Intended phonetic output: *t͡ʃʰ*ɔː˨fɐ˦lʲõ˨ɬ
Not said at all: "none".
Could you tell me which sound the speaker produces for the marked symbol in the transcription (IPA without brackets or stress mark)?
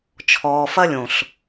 t͡ʃʰ